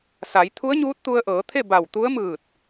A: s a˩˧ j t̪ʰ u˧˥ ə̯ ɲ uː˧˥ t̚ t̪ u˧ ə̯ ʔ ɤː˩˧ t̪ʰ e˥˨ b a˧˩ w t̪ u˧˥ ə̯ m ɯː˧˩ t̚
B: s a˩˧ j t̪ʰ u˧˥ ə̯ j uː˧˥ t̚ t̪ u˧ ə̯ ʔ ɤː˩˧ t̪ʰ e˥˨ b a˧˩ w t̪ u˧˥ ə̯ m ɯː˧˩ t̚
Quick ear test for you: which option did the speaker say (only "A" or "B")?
A